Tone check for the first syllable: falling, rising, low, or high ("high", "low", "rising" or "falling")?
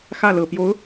falling